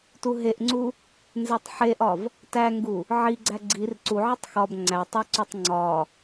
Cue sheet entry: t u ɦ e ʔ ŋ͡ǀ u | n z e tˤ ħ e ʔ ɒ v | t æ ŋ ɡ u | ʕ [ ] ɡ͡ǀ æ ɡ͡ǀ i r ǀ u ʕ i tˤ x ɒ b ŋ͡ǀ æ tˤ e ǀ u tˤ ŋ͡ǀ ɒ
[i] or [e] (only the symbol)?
i